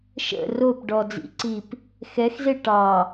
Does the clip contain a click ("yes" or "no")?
yes